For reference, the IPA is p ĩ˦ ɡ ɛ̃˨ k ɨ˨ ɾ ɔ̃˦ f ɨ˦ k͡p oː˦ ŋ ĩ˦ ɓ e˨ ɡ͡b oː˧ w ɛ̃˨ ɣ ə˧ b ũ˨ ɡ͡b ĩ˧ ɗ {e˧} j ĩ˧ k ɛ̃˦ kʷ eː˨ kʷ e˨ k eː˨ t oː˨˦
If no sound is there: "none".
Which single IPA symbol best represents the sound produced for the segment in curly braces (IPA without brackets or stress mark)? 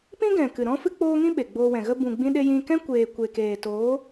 e˧